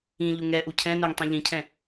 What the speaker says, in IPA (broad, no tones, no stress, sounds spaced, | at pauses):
ĩ ʎ u ŋ ɛ ʔ u cʰ ɛ̃ n ʊ ŋ tˤ ĩ ʎ ĩ cʰ ɛ̃